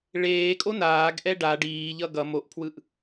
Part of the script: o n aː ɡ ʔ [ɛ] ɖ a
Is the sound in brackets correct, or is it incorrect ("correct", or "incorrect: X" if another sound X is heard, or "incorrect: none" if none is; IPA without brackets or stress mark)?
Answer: correct